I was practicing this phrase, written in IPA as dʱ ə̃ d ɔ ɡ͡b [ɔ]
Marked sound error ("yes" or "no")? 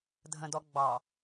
yes